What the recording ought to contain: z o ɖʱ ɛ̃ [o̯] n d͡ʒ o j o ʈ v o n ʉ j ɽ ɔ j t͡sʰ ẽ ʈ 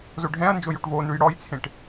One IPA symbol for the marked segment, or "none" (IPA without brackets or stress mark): ɐ̯